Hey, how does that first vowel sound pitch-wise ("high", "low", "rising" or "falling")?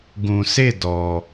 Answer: low